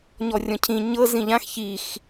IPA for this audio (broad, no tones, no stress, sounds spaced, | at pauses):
ɲ ɔ rʲ ɔ̃ cʰ ĩ ɲ ɤ z ĩ ʎ ã x ç i x